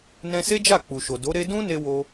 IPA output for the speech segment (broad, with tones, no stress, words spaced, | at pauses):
nɛ̃˧se˦d͡ʒa˦˨ k͡pu˨ʃo˨do˨˦ ɾe˧ dũ˦ne˧wo˧